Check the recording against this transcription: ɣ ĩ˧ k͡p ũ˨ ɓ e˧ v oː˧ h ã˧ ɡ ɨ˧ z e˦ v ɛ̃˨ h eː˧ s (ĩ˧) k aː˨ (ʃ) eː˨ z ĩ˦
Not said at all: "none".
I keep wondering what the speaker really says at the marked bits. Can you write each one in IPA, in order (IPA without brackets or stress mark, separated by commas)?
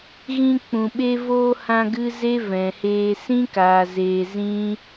ĩ˦, z